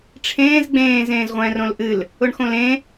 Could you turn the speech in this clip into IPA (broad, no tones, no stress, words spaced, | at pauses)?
ʈ͡ʂʰẽːz ɡ͡bẽːz ẽːzʁʷɛ̃ːrõlʔɨl | ʊɳxõlẽ